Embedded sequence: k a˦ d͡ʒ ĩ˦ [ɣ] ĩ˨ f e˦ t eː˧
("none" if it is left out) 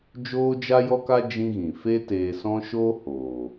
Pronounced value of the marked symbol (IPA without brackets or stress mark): ɣ